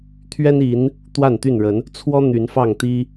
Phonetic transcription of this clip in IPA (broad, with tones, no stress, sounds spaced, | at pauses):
t̪ʰ ɥ ɛ˦ n i˨˦ n | t̪ w a˥˨ n t̪ y˥˨ n ɻ ə˨˦ n | t͡sʰ w ɔ˦ n̪ y˨˦ n f ɑ˥˨ ŋ t̪ i˦